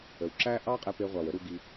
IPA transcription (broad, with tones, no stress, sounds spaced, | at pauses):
ə˨ w ǁ æ˦ ʔ ɑ˦ qʼ ɛ˧ p e˧ ʁʷ ɑ˨ w ə˦ ɾ u˧ ɡ i˧